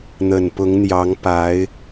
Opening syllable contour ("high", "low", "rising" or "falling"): low